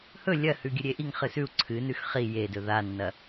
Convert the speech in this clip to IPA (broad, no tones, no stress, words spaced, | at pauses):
hɵ lʲɐhʉ ɡʲɵɾʲeʔiŋχɨ sʉu̯ ǀʰɨnʉx χi jedɵ ðanːɐ